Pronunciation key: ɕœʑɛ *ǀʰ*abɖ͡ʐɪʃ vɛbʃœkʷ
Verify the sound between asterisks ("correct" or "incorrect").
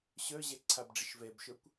correct